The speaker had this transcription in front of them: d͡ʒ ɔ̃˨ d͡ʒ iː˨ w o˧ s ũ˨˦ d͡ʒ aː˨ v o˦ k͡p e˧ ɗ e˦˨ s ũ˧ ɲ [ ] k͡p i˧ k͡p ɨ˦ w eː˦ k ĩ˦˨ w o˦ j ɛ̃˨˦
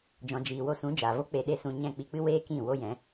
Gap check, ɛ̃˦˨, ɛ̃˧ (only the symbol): ɛ̃˦˨